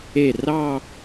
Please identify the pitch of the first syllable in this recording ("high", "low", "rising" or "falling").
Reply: falling